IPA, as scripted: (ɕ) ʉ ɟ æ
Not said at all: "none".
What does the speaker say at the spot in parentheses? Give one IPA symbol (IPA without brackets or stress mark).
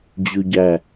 d͡ʑ